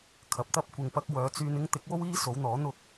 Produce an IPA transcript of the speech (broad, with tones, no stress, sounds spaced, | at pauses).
kʰ ɐ˨˥ p̚ t̪ ɐ˥ p̚ kʷ ɪ˧ ŋ p ɐ˥ k̚ w œː˨˧ t͡s yː˧ n ɪ˥ ŋ t̪ ɪ˨˥ k̚ w o˥ w iː˥ s o˨˥ w n̪ ɔː˨˥ n̪ ʊ˥ k̚